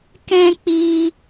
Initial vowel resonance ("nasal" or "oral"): nasal